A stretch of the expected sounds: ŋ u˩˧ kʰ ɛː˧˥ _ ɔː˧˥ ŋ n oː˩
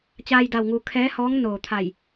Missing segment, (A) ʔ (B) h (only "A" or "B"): B